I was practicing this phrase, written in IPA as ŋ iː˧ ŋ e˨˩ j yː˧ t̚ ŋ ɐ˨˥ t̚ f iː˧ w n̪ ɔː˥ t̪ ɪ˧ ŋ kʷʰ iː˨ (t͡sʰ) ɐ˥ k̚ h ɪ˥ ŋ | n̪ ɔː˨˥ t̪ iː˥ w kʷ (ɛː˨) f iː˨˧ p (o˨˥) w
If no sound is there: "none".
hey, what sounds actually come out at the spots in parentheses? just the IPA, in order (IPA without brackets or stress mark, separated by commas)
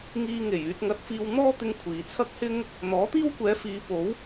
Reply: t͡sʰ, ɛː˨˧, o˨˥